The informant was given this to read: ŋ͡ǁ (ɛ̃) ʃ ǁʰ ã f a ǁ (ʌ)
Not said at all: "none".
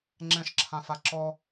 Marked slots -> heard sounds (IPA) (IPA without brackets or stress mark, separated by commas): ɛ̃, ɔ